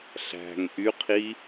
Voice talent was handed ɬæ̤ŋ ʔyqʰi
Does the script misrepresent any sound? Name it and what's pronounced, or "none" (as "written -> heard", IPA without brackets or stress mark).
none